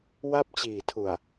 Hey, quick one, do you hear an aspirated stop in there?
yes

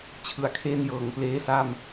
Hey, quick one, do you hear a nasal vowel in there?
no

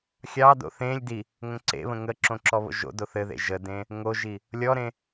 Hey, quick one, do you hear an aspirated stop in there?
no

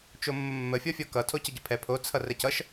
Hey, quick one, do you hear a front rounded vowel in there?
no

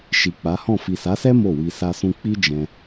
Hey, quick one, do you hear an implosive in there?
no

